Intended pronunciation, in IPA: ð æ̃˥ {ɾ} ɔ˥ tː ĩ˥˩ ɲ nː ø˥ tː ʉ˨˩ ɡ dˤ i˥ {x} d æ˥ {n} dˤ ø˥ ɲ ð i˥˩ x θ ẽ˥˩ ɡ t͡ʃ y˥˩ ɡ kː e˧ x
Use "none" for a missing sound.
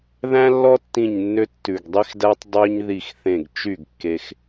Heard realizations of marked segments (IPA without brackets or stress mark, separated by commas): lː, x, tˤ